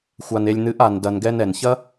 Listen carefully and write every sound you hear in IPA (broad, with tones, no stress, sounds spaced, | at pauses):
xʷ a˨ n e˨ lʲ n̪ ɨ˨˦ ʔ a˨ n d ɐ˨ n ɡ ɛ˧ n ɛ˨ n ç ɐ˦